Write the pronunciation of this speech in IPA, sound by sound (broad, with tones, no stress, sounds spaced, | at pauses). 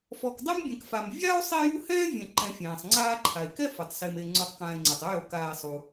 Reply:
f ɔ˨ k dˤ ɛ˥ m bʲ ɛ̃˨ k f a˨ m vʲ aː˥ o̯ sˤ i˦ j u˦ h ɛ̃ː˥ vʲ ɛ̃˨ ǃ ɛ̃˨ fʲ ɛ̃ː˩ sˤ ŋ͡ǀ aː˦ ǃʰ a˩ e̯ k ɛ˦ f u˩ tˤ s e˨ m e˨ ŋ͡ǀ u˨ tˤ k ãː˨ e̯ ŋ͡ǀ e˩ tˤ ɤ˦ j o˨ k aː˨ e̯ sˤ u˨